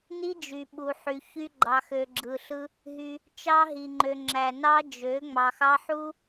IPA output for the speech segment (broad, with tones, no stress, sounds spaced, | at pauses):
n i˦ d͡ʒ y˨ ɓ u˨ ħ y˨ ç y˦ ɡ͡ǃ ɑ˨ x ø˨ ɡ͡ǁ ɯ˨ ɬ ɯ˦ | ɦ y˦ | t͡ʃ ɑ˦ ɦ i˨ ŋ͡ǃ ø˨ ŋ͡ǁ æ˨ n ɑ˦ d͡ʒ ø˨˦ ŋ͡m ɑ˨ x ɑ˦ ħ u˦